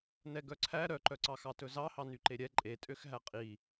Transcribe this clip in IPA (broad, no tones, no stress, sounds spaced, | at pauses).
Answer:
n ɛ ɡ œ ǀʰ æ ɾ œ ǃ œ ǀ ɑ x ɑ t ɵ z ɑ h ɑ n y ǃ e ɾʲ ɛ ǃʼ e tʼ ø x ɦ æ qʼ i